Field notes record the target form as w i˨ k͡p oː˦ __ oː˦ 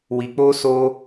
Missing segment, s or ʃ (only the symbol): s